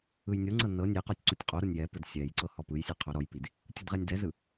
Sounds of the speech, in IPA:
ɯ j nʲ o ŋ͡ǀ ɤ n ɤ nʲ e q ɔ tʲ ǀ u tʲ qʼ o ɾ ɔ nʲ j ɛ p ɯ d sʲ ɛ j ǀ ɤ h ɔ p ɯ j sʲ e qʰ o ɾ ɔ j p i d | tʲ u d ʁ ɛ nʲ d ɛ z ɯ

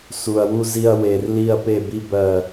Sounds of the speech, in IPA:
s u˧ ɐ̯ w u˥ z i˥ ɐ̯ w e˧ r l i˥˧ ɐ̯ p e˥˧ b i˥ b ɜ˥˧

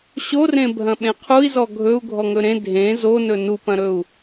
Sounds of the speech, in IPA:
ɕ o r ẽ bʱ ɐ̃ ɓ ẽ qʰ u i̯ z ɔ ɡʱ ɵ u̯ ɡʱ ɔ ŋ ɵ ɾ ẽ dʱ ẽ z o n ɵ n u p ɐ̃ ɾ ɵ u̯

